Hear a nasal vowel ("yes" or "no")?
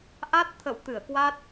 no